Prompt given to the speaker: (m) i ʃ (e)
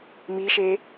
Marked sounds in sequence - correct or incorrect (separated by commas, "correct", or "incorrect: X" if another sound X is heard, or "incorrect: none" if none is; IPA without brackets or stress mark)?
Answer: correct, correct